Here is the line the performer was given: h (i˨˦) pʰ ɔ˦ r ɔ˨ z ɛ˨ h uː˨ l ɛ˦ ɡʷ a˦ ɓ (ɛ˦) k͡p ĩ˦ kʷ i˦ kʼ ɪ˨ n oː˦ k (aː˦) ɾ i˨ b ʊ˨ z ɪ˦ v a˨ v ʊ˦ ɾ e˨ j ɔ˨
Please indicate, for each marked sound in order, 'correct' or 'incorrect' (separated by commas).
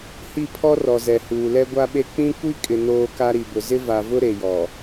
incorrect, incorrect, incorrect